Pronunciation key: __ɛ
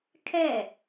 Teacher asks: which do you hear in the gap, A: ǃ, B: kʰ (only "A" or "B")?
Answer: B